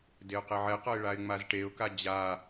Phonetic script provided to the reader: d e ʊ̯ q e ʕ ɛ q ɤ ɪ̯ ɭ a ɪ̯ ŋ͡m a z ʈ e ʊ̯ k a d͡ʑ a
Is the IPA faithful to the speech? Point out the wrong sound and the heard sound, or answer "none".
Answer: none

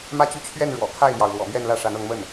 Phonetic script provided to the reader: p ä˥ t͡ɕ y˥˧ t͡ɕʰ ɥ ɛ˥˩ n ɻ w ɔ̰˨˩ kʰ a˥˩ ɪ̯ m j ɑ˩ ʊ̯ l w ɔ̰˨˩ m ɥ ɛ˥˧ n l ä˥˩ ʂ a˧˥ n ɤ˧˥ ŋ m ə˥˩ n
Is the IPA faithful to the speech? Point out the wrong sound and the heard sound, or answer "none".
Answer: p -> m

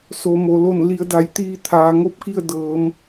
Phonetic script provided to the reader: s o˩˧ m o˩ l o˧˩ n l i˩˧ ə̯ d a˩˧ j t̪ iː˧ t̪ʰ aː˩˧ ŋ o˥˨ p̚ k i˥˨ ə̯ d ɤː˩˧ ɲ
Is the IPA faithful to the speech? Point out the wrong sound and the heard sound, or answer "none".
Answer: ɲ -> m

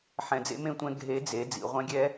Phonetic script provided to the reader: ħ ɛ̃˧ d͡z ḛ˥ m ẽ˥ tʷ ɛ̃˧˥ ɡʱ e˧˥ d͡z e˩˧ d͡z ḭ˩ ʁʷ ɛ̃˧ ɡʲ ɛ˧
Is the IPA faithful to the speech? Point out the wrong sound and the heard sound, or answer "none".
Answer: none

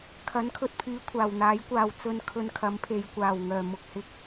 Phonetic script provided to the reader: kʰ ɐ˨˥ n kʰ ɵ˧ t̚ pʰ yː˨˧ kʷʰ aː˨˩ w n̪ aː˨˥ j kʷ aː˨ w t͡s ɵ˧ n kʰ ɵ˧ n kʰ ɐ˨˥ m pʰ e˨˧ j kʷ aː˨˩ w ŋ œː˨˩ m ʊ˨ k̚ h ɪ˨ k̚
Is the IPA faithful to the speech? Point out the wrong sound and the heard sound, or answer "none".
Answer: none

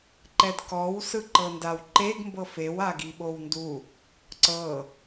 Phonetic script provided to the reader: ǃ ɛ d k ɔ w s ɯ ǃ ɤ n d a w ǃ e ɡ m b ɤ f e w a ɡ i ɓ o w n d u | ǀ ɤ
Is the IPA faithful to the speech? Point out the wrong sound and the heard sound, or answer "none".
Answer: none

